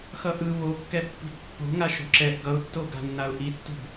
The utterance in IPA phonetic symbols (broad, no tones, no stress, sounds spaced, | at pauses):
x ʌ ʔ ɯ β o kː ɛ pː ṳ t pː o̤ ŋ a ʃ o̤ ǁ ɛ ʔ ɡ ʌ ʊ̯ tː o ɡ a̤ nː a ʊ̯ ʔ i tː ṳ b